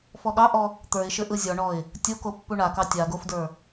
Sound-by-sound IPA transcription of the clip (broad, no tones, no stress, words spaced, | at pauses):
fɔɠɑʔɔ | t̪ə˞ɪ̯ʃɘ ʔɯzʲɔɳɔɪ̯ | tʲoko pːuɳakɑ tʲa ɡofdə˞